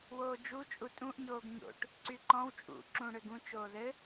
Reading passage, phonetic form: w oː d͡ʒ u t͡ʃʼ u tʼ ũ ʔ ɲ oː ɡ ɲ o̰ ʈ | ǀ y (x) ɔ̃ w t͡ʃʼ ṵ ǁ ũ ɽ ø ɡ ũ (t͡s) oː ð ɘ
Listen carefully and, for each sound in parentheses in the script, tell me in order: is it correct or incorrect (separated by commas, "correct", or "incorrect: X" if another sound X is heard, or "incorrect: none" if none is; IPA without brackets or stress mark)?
incorrect: ǃ, incorrect: t͡ʃ